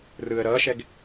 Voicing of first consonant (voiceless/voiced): voiced